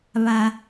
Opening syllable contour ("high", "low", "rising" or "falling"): low